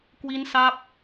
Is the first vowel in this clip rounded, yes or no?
no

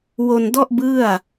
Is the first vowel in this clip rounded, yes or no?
yes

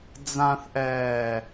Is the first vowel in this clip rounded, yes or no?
no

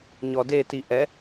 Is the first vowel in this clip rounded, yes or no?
yes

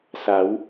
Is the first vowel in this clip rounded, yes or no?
no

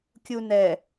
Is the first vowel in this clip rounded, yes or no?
yes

